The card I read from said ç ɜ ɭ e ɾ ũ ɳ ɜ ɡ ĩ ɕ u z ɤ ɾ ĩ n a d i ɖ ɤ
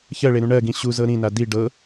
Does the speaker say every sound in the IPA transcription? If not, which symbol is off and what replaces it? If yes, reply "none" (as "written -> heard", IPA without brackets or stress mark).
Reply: none